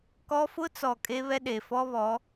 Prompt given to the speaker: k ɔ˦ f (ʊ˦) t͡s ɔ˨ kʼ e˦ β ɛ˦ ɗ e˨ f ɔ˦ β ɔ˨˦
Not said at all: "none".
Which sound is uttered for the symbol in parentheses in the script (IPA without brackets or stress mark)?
ʊ˦